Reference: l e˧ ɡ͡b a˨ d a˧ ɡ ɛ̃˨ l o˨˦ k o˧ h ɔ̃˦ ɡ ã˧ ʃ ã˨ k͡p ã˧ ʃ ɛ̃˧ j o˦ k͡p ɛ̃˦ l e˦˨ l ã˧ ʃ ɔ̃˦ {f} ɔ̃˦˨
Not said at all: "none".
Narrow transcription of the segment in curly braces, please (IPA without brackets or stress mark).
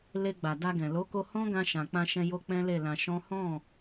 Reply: h